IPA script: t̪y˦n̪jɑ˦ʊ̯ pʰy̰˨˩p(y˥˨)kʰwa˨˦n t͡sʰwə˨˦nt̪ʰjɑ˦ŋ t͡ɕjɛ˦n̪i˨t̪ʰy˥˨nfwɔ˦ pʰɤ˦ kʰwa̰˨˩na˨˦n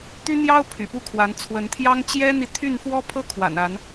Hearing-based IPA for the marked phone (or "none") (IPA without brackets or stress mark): u˥˨